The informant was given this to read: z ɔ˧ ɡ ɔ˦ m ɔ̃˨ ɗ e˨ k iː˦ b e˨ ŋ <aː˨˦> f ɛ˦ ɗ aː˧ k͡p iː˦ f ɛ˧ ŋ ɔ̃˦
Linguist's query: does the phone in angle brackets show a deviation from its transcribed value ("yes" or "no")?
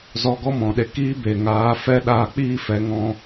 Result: no